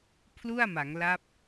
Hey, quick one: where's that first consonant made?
lips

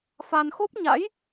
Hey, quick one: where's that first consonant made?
lips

